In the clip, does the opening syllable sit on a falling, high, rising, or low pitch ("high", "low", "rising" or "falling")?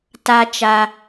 high